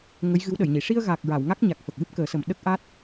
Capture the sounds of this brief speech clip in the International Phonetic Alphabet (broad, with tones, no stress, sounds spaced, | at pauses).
ŋ ə˧˥ j ɣ ɨ˧˥ w ɗ ə˨˩˨ j ɲ i˨˩˨ ʂ i˧ ə̯ ɣ a˨˩ k̚ ɹ a˨˩˨ w ŋ a˦˥ k̚ ɲ a˨˩ k̚ f ə˨˩ k̚ w ɨ˦˥ p̚ k əː˨˩˦ s ə˨˩ m ɗ ə˦˥ k̚ ʔ aː˦˥ t̚